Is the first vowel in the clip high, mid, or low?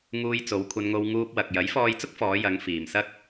high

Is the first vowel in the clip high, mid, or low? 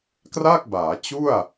low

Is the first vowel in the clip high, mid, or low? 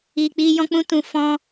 high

